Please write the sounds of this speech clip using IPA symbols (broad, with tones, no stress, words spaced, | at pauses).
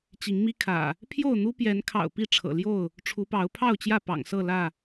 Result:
t͡ɕi˨˦ŋmi˦kʰä̰˨˩ | pʰjo˥˨ʊ̯n̪u˦ pjɛ˨˦nkʰɑ̰˨˩ʊ̯ pi˥˨ʈ͡ʂʰɤ̰˨˩ljo˥˨ʊ̯ | ʈ͡ʂʰu˨˦pɑ˨˦ʊ̯pʰɑ˥˨ʊ̯t͡ɕjä˥˨ pɑ̰˨˩ŋsɤ˥˨lä˥˨